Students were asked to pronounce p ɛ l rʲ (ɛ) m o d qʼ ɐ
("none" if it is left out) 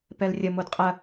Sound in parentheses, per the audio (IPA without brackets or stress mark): ə